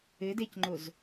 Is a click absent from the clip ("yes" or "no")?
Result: no